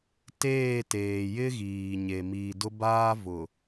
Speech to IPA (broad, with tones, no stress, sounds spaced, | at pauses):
t eː˦˨ t eː˨ j ɪ˦ ɣ iː˨ ɲ e˨ m iː˨ d ʊ˦ b aː˦ v ʊ˨